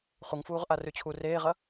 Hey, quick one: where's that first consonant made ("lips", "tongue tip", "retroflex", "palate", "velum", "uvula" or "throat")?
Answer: uvula